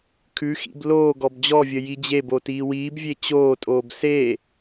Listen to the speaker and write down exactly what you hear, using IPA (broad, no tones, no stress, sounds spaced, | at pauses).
kʰ ʉ x ḭ b l oː ɡ ɔ b d͡ʑ ɔ vʲ ə j i d͡ʑ e b o t iː w iː b vʲ e t͡ɕ oː tʼ oː b s e